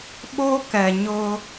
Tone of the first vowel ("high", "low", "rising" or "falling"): high